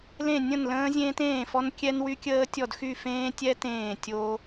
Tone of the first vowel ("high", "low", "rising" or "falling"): falling